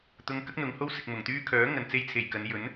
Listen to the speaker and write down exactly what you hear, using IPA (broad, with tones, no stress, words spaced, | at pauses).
t̪ʊ˧ŋkɐ˥k̚n̪ʊ˨˧ŋho˥w sɪ˨k̚mʊ˨˩ŋt̪yː˥ kʰœː˨˥ ŋɐ˨nt͡se˧j t͡sʰe˨˩jkɐ˨˧n jɵ˨˥n